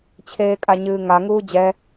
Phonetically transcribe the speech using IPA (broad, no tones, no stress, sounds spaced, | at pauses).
t͡ɕʰ eː kʼ a ɲ ɨː ŋ a ŋ uː d͡ʑ ɛ